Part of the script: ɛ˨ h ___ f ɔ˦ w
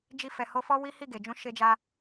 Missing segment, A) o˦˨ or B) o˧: B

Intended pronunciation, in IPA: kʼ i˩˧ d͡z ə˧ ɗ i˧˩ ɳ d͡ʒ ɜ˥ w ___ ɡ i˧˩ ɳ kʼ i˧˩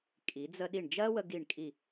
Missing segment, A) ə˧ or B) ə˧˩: A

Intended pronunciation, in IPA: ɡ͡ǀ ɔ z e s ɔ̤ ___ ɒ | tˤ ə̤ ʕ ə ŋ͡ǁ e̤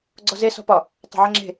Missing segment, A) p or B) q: A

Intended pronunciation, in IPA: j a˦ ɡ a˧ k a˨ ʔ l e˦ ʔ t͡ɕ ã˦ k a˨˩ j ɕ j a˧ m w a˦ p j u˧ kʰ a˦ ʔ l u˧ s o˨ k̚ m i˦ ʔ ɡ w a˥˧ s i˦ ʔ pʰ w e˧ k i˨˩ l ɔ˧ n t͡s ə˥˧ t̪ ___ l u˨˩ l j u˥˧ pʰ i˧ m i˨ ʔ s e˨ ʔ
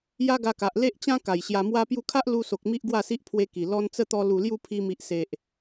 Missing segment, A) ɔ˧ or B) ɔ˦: A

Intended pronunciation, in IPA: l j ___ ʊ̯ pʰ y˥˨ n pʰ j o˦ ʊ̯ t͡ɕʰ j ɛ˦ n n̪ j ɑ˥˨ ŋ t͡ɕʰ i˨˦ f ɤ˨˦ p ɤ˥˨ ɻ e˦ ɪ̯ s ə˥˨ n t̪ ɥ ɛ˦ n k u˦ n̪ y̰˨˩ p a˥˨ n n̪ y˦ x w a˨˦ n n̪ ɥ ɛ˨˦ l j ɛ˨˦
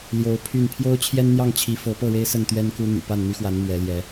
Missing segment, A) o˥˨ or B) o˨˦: B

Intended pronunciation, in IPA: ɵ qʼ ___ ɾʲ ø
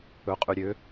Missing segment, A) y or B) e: A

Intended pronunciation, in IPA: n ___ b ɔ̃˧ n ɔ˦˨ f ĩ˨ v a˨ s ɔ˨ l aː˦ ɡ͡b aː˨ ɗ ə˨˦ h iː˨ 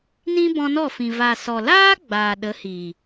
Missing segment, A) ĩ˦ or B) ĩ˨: A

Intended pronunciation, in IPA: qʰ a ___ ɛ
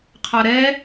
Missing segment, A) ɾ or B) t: A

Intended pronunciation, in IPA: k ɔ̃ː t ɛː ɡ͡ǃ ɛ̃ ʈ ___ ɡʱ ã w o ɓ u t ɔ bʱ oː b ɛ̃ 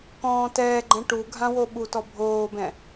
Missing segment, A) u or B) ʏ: A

